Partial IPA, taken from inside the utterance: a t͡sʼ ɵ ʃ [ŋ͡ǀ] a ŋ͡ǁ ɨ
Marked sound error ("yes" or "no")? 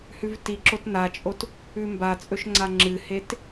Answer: no